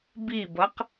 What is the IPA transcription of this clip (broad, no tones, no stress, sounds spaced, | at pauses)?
b i b ʌ q